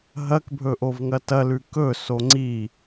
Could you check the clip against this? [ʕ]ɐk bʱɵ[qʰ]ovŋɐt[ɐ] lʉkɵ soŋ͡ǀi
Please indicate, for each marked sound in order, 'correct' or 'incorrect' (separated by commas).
incorrect, incorrect, correct